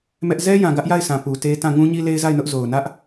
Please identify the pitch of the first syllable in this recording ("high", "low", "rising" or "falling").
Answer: high